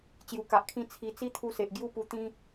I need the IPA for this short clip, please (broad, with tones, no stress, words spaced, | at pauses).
t͡ɕju˨˩ka˨ʔkʰĩ˥˧ t͡sʰi˧ t͡si˦ t̪ʰu˦se˨ʔ ɡju˦pu˧t̪ĩ˦